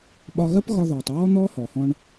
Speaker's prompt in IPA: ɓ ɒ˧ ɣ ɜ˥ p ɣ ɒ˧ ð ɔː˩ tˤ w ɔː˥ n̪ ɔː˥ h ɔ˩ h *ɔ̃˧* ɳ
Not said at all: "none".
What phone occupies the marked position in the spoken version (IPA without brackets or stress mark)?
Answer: ɔ̃˧